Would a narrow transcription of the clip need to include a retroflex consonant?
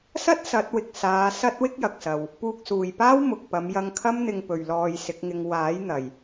no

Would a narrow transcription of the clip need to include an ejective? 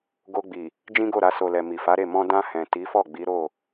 no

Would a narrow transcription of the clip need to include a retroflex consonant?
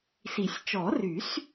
no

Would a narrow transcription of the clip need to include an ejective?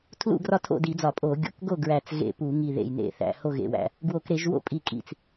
yes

